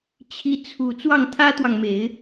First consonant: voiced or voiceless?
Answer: voiceless